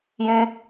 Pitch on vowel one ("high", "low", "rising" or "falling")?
low